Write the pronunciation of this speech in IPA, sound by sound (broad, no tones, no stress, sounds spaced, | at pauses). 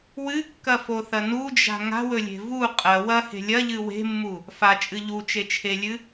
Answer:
w ɨ kː ɐ f o θ ɐ n u d͡ʒ a̤ ŋ a̤ w ɵ lʲ e̤ v u qʼ ɐ w ɐ h e̤ lʲ ɐ ʎ ɨ w e̤ mː u | f a t͡ʃʼ ɨ ʎ u t͡ʃ e t͡ʃʰ e lʲ ɨ